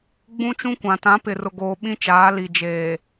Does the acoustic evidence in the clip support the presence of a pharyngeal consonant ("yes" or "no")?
no